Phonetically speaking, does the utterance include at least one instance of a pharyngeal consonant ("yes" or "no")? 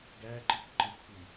no